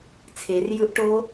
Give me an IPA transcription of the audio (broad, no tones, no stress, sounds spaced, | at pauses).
t͡sʰ e r j ɯ ʔ ʈ o